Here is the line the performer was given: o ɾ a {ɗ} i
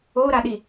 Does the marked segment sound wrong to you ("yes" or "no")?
no